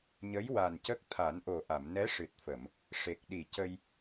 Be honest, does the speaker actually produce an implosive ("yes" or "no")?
yes